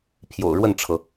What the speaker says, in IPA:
pʰ j o̰˨˩ ʊ̯ ɻ w ə˥˨ n ʈ͡ʂʰ ɤ˩

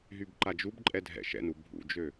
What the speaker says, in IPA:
ɦ y b ǃ a d͡ʒ u b ǃʼ ɛ dʱ ɛ̰ ʃ ɛ̰ n u bʱ ṵ d͡ʒ ø

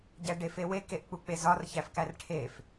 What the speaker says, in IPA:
ɟ æ ɖ e f e w e k e ʔ k͡p u k͡p e z ɒ r ç æ f k æ r ʈʰ e f

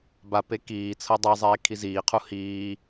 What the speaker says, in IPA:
b a p e k iː t͡sʰ ɤ dˤ ɤ zˤ eː kʰ i z iː qʰ u h iː

